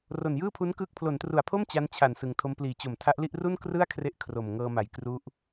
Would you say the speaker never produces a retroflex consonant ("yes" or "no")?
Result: yes